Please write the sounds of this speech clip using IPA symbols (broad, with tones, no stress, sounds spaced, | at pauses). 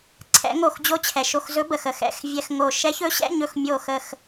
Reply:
ǀʰ ɛ̰˧˥ ŋ o˧˩ x d͡ʑ o˧˥ t͡ɕʰ ɛ˩ ʃ o˧˩ x z ɵ˧˥ b ə˩ x ə˧˩ x ɛ̰˧˥˧ x vʲ ɛ˧˥˧ x ŋ o˧˩ ʃ ɛ˧˥ ç ɵ˧˥ ɕ ɛ̰˧˥˧ ɲ ɵ˧˩ x mʲ o˧˩ x ə˧˩ x